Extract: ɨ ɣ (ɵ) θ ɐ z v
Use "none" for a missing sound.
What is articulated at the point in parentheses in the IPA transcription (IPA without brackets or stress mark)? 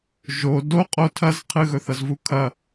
ɵ